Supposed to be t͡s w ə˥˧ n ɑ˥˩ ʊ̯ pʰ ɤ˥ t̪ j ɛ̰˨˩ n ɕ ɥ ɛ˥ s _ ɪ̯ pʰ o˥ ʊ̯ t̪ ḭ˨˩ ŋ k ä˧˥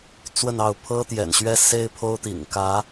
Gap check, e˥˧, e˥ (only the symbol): e˥